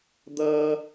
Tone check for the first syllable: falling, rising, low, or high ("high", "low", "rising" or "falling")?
high